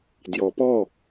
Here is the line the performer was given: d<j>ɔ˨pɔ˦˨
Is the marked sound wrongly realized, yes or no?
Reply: no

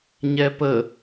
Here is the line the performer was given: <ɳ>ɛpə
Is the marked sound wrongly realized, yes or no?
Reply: yes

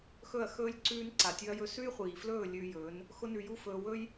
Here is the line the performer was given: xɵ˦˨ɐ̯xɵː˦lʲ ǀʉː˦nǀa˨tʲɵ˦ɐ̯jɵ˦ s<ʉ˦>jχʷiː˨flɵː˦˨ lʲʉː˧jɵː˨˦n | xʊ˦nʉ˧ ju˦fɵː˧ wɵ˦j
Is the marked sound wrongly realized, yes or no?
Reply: no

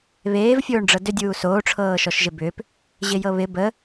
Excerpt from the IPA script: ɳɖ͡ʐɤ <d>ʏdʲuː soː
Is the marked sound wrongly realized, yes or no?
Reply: no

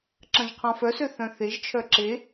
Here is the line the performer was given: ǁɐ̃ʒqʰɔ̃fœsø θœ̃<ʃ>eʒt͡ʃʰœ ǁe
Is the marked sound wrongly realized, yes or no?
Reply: yes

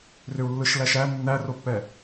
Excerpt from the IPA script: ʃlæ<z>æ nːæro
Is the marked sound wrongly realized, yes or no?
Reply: yes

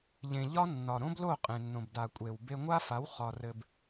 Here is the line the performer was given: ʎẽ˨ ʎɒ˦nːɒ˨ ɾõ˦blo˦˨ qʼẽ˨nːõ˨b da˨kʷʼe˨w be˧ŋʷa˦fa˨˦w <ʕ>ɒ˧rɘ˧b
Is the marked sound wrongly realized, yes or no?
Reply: yes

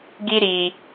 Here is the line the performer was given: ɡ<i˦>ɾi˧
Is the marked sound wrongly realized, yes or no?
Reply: no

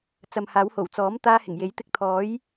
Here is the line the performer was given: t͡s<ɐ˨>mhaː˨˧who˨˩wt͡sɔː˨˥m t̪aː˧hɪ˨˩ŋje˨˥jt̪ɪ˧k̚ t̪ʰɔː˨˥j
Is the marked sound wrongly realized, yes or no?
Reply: no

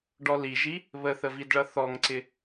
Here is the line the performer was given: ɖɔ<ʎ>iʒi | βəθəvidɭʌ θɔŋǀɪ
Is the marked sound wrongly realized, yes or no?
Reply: yes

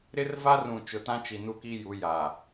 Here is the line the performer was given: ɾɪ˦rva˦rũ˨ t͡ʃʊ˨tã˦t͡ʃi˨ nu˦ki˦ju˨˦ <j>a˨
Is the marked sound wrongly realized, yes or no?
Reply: no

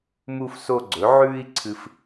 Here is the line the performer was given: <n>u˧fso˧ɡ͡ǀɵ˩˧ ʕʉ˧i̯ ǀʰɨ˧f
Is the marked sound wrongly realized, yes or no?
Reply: yes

